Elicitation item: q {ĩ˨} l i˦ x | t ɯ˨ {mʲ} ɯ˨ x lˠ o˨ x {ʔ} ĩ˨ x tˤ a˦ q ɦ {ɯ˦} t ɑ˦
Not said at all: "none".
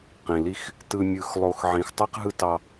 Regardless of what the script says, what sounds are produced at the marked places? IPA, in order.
ĩ˨, mʲ, ʕ, ɯ˦

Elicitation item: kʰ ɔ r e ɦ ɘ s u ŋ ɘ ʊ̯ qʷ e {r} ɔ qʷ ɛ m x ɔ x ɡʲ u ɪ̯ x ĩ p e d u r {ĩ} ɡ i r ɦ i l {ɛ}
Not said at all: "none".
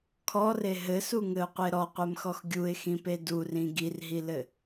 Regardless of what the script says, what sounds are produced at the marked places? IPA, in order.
ɾ, ĩ, ɘ

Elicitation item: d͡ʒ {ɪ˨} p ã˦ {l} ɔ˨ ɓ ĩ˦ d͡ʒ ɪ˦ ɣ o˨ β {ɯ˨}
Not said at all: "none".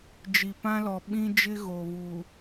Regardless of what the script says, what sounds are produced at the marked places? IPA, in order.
i˨, l, u˨

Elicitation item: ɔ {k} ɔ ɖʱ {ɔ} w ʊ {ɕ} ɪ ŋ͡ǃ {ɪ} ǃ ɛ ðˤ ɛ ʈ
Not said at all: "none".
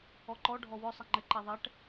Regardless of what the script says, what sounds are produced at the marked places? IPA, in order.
ǃ, ɔ, sˤ, ɪ

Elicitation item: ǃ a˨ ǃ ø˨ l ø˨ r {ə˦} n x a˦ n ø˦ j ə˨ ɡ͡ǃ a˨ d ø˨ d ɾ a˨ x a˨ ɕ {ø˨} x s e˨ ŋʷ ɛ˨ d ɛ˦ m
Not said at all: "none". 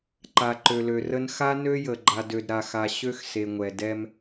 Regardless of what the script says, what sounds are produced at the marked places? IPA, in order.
ə˦, ø˦

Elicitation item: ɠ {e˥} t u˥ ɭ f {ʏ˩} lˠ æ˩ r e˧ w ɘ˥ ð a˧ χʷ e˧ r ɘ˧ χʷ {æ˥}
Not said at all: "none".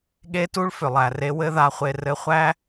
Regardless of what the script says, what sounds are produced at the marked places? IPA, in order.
e˥, ʏ˩, æ˥

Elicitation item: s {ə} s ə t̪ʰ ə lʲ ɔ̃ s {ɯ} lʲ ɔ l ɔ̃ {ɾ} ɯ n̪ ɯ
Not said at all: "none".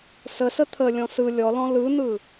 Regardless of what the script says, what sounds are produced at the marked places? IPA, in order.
ə, ɯ, l

